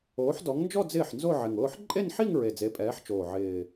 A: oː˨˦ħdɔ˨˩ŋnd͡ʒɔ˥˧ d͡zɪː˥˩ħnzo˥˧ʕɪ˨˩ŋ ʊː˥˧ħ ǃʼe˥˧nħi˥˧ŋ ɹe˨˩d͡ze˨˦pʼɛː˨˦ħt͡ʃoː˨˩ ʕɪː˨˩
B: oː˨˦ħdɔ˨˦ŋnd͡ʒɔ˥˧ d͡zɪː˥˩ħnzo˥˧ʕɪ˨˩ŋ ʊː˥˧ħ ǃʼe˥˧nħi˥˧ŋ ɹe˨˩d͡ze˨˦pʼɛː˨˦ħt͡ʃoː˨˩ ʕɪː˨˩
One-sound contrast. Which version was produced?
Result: B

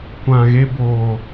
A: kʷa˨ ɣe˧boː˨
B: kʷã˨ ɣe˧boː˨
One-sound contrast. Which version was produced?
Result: B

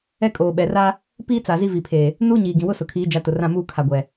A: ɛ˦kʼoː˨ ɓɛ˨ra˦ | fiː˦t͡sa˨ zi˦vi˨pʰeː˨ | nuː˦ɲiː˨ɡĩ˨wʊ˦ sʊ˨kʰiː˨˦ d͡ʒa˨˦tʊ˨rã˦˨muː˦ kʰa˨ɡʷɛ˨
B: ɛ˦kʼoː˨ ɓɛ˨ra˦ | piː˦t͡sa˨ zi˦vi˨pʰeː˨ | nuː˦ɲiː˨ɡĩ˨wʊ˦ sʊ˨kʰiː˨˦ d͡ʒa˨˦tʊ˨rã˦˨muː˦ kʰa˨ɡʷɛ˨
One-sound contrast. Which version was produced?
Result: B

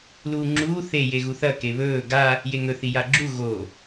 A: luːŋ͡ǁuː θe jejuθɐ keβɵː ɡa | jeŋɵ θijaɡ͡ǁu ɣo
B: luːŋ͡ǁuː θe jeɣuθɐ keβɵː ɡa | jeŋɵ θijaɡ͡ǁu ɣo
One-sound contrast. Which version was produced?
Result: B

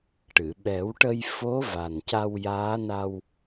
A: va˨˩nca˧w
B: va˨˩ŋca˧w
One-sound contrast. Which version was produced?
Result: A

